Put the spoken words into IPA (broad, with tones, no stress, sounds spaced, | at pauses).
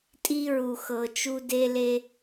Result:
tʼ i˦ ɹ u˨ x ɤ˨ t͡ʃ u˦ d e˦ l e˦